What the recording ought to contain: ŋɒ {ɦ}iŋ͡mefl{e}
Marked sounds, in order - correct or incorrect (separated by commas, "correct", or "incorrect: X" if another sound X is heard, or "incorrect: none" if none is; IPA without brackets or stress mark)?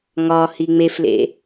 incorrect: h, incorrect: ḛ